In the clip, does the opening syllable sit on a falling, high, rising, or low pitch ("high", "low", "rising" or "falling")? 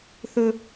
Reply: high